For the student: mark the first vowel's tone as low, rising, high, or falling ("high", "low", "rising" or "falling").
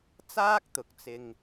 high